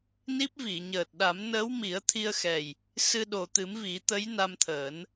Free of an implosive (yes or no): no